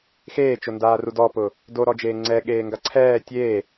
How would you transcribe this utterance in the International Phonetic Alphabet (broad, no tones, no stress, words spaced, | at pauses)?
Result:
xeːt͡ʃondaːrud ɔpʊː | doɾɔd͡ʒeː ŋ͡ǀɛɠeːŋɡa ǀʰɛː tʲeː